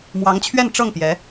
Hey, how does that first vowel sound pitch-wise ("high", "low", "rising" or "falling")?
rising